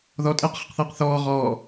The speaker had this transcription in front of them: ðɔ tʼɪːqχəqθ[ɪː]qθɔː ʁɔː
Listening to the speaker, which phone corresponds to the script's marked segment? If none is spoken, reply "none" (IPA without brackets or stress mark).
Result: ɪː